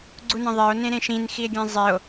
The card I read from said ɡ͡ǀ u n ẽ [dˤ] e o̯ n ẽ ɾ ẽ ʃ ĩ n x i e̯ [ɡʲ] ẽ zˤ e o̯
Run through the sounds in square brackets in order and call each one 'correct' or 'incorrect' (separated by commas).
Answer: incorrect, correct